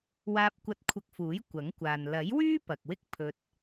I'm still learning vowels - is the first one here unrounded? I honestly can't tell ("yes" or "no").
yes